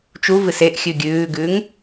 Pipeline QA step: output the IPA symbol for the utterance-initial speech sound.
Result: t͡ʃ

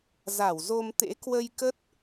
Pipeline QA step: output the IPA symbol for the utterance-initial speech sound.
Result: z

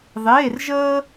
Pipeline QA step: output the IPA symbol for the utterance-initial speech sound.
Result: ðˤ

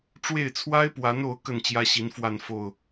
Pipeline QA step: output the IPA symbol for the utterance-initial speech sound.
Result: ʈ͡ʂ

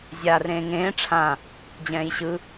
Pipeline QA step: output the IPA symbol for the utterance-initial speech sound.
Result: zʲ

